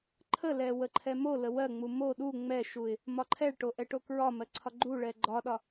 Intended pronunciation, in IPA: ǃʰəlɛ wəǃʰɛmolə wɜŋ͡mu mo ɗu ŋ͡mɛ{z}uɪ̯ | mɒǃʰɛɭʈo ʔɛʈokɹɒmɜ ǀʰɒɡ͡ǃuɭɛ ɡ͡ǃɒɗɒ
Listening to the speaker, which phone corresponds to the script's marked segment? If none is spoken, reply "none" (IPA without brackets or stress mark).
ʃ